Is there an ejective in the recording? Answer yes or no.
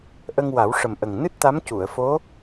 no